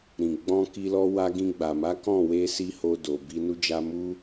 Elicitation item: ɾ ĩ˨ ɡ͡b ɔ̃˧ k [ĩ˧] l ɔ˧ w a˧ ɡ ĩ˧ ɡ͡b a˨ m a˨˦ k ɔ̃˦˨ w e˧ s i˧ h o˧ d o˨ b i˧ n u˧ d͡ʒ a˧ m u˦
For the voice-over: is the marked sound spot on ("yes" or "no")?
no